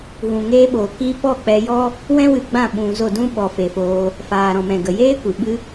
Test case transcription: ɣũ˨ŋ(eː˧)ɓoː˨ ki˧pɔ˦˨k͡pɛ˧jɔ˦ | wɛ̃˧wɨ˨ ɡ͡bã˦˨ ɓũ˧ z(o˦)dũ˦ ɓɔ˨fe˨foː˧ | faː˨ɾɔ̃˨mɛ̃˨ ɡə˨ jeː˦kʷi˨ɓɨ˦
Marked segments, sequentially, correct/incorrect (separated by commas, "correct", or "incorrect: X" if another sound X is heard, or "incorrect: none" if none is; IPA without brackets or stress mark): correct, incorrect: o˦˨